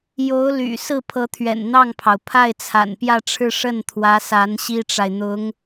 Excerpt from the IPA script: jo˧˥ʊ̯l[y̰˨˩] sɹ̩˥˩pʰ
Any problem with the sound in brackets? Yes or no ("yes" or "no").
no